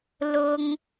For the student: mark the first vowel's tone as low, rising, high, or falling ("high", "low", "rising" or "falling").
high